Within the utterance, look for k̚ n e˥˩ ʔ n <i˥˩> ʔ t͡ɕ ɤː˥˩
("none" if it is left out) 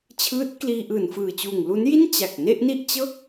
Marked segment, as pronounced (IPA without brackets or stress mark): i˥˩